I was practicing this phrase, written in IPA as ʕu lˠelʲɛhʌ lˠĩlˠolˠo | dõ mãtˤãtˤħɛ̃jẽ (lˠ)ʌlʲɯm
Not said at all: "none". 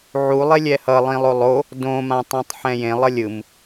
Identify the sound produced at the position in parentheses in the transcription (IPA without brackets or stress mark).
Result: lˠ